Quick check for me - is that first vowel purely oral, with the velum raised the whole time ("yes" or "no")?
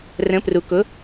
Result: no